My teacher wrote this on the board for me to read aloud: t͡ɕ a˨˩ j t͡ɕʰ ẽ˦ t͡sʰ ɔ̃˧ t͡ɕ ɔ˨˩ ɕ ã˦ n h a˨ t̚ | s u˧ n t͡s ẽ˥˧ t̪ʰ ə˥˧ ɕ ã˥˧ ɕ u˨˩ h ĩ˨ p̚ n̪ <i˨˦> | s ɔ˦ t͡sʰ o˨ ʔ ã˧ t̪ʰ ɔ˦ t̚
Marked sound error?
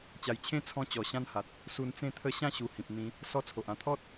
yes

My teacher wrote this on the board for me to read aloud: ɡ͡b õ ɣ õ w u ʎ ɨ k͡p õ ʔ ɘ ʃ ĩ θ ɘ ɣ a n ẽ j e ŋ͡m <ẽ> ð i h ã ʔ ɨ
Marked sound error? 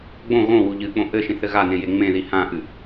no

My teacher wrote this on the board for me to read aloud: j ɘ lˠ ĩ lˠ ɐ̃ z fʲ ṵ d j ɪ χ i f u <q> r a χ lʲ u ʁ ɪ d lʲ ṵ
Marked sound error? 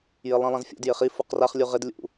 no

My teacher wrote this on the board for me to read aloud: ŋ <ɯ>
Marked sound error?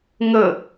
yes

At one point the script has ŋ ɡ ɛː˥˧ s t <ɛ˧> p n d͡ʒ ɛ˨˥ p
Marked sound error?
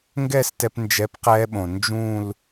no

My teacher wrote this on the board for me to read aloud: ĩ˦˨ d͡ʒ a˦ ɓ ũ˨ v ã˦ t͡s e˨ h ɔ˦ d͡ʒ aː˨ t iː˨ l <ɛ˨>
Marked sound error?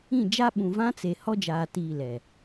no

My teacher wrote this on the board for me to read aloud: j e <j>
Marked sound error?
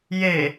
yes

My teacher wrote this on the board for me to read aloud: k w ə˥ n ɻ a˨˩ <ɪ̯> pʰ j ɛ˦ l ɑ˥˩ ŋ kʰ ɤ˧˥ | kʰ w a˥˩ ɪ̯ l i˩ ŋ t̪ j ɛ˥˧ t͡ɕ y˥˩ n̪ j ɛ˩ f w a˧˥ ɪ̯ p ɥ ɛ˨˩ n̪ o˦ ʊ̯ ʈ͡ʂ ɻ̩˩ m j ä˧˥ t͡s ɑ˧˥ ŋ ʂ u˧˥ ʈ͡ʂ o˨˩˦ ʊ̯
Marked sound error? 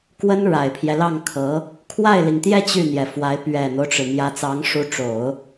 no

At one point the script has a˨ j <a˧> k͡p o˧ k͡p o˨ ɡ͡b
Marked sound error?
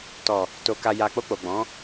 yes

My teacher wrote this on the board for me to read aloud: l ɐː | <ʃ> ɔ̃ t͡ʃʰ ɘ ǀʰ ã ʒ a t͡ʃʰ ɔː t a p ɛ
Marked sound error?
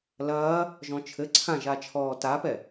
yes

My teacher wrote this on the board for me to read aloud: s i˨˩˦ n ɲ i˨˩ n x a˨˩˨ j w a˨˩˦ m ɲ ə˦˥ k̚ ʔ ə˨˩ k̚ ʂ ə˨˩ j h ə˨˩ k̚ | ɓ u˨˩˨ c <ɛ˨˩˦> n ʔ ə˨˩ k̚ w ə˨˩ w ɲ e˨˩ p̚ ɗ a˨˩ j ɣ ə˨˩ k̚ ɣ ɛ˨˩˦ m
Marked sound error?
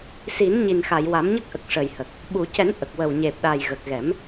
no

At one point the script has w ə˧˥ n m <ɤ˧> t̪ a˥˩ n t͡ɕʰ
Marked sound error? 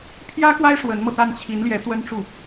no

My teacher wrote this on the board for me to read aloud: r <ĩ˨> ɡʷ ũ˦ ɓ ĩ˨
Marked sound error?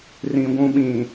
no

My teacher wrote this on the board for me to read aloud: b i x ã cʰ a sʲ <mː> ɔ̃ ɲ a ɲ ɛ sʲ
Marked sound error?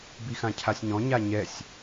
yes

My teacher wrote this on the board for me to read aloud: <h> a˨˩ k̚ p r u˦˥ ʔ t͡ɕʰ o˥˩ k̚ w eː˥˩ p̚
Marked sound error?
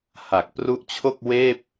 no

